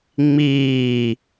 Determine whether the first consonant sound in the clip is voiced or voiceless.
voiced